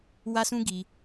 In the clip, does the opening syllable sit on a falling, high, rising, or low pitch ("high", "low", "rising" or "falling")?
high